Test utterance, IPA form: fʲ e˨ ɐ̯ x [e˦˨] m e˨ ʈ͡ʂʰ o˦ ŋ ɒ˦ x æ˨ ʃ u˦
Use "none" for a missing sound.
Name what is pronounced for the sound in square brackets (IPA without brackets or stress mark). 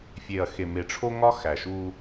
e˨